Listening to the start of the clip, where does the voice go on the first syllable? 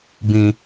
low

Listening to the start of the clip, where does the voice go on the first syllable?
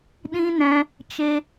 high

